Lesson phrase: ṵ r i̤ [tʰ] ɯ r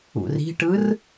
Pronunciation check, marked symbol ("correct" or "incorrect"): incorrect